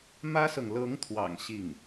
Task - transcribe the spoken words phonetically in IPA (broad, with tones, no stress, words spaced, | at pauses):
mä˥sɤ˨ŋ lɤ˧˥ŋt̪ʰwɑ̰˨˩ŋ ɕi˥˩ŋ